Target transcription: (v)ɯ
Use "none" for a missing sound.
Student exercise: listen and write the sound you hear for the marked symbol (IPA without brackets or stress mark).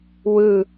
w